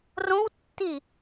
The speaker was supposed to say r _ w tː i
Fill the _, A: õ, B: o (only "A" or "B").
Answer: A